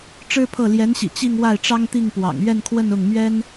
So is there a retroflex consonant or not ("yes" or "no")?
yes